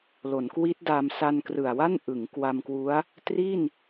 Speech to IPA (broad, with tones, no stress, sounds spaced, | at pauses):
l o˩˦ n k w i˦˥ t̚ d a˧ m s a˧ n k r ɯ˨˩ a̯ w a˥˩ n ʔ ɯ˩˦ ŋ k w a˧ m k w u˦˥ a̯ | t r i˥˩ n